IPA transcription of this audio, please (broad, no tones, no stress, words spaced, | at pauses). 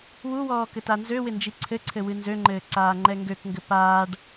wuwɔː kɘtanzøwɪ nd͡ʒiǀʰɘǀʰɘ wɨnzøŋ͡ǃɘː ǀaːŋ͡ǃɛŋɡøkŋɡɘ paːɖ